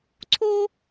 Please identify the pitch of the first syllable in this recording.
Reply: high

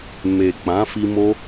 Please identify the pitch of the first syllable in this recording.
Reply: low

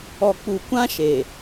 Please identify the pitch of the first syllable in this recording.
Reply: low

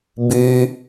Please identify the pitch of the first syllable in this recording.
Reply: low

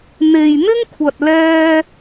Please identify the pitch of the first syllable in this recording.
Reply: low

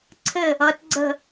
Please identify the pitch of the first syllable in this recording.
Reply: falling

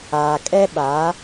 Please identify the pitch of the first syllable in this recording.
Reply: low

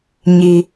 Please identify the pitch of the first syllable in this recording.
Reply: low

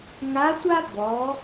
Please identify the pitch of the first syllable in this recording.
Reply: rising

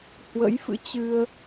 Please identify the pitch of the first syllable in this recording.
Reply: rising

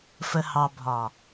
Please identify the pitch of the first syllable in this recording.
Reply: low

